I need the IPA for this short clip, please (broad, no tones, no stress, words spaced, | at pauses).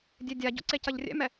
dʲedʲaɟo̰ ǀecɐʎrʲɛ̰mɛ